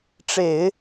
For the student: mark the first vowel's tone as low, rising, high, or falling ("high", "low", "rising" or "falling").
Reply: low